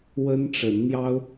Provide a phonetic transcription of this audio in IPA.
w ə˦ n ʈ͡ʂ ə˨˦ n n̪ j ɑ˦ ʊ̯

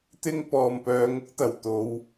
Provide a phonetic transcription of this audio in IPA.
t̪ ɪ˥ ŋ p ɔː˨ m p œː˨˧ ŋ ʊ˨˥ k̚ t̪ ɐ˨˩ w t̪ o˨˧ w

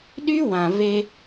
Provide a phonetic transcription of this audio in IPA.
ɗ y˦ w ã˨ v e˧

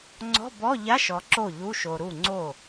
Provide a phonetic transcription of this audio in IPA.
ŋ͡ǀ ɔ̤˧˥˧ b ɔ˧˥˧ ʎ a˧˥˧ ʃ ɔ˨ ǁ o˥˩ ʎ u˧˥˧ ʃ o˨ ɾ u˥˩ ŋ͡ǀ o˥˩

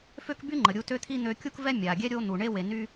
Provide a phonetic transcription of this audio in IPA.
f ø˥ k b y˥ ŋ͡ǃ ə˩ ɾʲ u˧ t ø˥ t̪ʰ i˥ n̪ ø˧ kʲ u˥ k v ɛ˥ mʲ a˩ ɡʲ ɛ˥ ɾʲ o˧ n̪ u˩ ɳ e˧ w e˩ n y˧

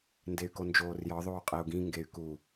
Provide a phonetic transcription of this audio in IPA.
n d e y̯ k o n d͡ʒ oː r j ɒ ðˤ oː qʼ e u̯ ɡ ĩ ŋ ɡ e y̯ k u

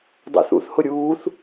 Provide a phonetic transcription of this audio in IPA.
dˤ æ̰ θ ṵ θ h ʊ ɾʲ uː θ

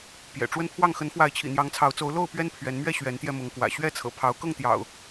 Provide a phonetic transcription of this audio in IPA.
p j ɛ̰˨˩ ʈ͡ʂ w ə˦ n pʰ w ɑ˥˨ ŋ x ə˨˦ n f w a˨˦ ɪ̯ t͡ɕʰ ḭ˨˩ n̪ j ɑ˨˦ ŋ t͡sʰ ɑ˨˦ ʊ̯ t͡s o˨˦ ʊ̯ l o˥˨ ʊ̯ p ɥ ɛ˦ n pʰ ɥ ɛ˨˦ n m ɥ ɛ˥˨ ɕ ɥ ɛ˨˦ n t̪ j ɛ˧ m ʊ˨˦ ŋ k w ä̰˨˩ ɕ ɥ ɛ˥˨ t͡sʰ ɤ̰˨˩ pʰ ɑ˨˦ ʊ̯ k ɤ˥˨ ŋ t̪ j ɑ̰˨˩ ʊ̯

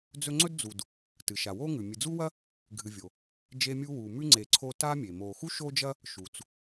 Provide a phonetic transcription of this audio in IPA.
d͡z ɵ˦ ŋ͡ǀ ɵ˥ d d͡z u˨ d | t ɨ˩ ʃ a˩ w o˥ ŋ ʉ˩ mʲ ɨ˨ d͡z u˥ w ɐ˥ | ɡʱ ɨ˨ vʲ o˩ | d͡ʒ e˦ mʲ u˦ w u˩ m ʉ˥ ŋ͡ǀ e˨ ǀʰ o˦ t a˦ mʲ e˩ m o˨ x u˥ ʃ o˥ d͡ʒ ɐ˥ | ʃ u˩ t͡s

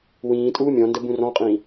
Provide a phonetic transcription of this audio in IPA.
w ĩː tʼ uː mʲ ɔ̃ n d ə b ũ r ɔ̃ qʼ ĩː

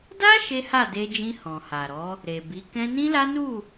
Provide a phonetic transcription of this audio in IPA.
d a˦ ʃ e˦ h a˦˨ d e˧ d͡ʒ ĩ˧ h ɔ̃˨ h a˨ ɾ ɔ˨˦ | ɾ e˨ b i˨˦ k ɛ̃˧ n ĩ˦ l a˦ n u˦˨

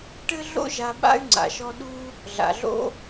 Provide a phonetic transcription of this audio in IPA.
ʈ ɘ˥ ɮ o̰˥ ʒ a˦ ɓ a̰˥ y̯ ŋ͡ǀ a̰˨ ʃ ɔ˦ ɗ u˥ | ɮ a̰˨ ɮ o̰˥

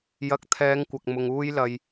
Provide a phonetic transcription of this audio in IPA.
j ɐ˧ k̚ t̪ʰ ɛː˨˧ ŋ kʷ ɐ˨ k̚ m ʊ˧ ŋ uː˥ j l ɐ˨ j

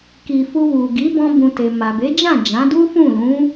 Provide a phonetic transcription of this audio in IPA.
k i˧ f u˧ w u˨ ɡ i˨˦ b ɔ̃˦ b ũ˧ t e˨ m a˨ b e˨˦ d͡ʒ ã˦˨ d͡ʒ ã˨˦ d u˦ f ũ˦˨ l ũ˨˦

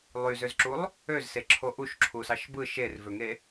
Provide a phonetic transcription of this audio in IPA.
lˠ y z ø z ǁ u lˠ | ø z s e ǁʰ o ʔ u ʃ ǁʰ u s ɑ ʃ b ɯ ʃ e r v ø ŋ e

